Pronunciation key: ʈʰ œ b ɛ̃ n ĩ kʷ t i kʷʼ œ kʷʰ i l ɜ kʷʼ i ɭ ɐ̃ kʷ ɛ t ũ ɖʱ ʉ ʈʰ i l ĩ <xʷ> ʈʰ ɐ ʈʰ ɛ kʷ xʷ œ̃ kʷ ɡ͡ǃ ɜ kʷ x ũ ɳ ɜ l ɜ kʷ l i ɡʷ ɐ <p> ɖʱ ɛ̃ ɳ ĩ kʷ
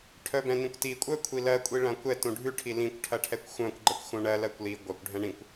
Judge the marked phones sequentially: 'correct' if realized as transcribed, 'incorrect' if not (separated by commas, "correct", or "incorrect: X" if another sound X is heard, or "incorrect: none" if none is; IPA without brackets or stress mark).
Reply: incorrect: kʷ, incorrect: kʷ